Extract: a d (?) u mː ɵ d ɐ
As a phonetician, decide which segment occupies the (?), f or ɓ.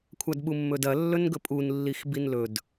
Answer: ɓ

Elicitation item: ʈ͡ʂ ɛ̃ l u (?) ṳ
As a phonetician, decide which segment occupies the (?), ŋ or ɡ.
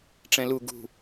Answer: ɡ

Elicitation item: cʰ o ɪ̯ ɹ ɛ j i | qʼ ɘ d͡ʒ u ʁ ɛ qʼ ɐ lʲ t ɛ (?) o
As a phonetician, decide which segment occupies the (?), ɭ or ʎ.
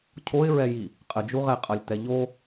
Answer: ʎ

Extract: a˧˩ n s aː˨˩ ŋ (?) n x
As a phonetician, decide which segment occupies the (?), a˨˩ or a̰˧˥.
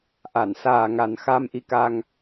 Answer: a˨˩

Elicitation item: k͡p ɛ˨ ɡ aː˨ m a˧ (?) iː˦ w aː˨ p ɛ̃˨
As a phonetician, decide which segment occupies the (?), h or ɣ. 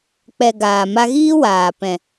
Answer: ɣ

